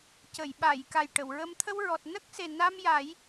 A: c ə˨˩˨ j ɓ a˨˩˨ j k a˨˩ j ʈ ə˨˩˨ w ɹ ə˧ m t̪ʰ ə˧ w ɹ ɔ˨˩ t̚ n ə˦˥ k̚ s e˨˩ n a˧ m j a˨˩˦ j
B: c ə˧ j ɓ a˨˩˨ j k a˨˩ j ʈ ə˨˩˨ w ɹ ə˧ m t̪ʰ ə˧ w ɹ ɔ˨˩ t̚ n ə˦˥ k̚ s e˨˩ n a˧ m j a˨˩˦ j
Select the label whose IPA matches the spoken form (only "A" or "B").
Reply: A